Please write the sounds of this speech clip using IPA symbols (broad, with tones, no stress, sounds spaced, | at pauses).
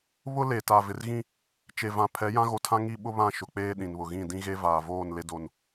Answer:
β ʊ˦ l e˨ t a˨ v ɪ˨ r ɣ ĩ˦ | t͡ʃ e˨ v ã˨ pʰ ɛ˨˦ j ã˦ ɣ o˨ tʰ ã˦ ŋ i˦ ɓ ʊ˦ β ã˦˨ ʃ ʊ˨ k͡p eː˦ ɗ ĩ˨ n β ʊ˨ ɣ ĩ˦˨ d ĩ˦ ɣ e˦ v aː˨ v oː˦˨ n l e˦ d o˦˨ n